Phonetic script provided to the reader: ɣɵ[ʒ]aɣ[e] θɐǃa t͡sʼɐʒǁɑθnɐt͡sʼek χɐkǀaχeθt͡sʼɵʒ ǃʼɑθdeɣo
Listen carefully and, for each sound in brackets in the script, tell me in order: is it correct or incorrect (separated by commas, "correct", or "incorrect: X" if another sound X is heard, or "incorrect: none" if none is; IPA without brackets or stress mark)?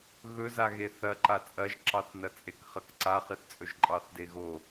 incorrect: z, correct